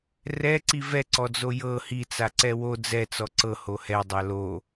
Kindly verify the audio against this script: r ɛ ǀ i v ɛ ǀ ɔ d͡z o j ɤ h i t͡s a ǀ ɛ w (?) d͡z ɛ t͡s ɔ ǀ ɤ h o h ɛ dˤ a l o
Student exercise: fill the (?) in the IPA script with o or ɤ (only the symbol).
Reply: o